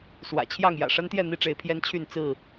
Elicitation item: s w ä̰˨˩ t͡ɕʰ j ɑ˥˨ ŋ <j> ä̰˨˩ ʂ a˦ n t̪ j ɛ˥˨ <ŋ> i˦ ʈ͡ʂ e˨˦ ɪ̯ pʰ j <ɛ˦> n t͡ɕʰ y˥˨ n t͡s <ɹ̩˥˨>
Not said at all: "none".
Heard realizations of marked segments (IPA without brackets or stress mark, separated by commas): j, n̪, ɛ˦, ɹ̩˥˨